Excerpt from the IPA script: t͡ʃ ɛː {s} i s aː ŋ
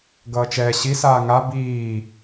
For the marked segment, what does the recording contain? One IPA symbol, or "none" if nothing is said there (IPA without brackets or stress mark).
ɕ